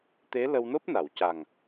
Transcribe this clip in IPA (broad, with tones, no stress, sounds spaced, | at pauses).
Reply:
t̪ e˧˥ l ə˧ w n o˦˥ p̚ n a˨˩˨ w c a˨˩ ŋ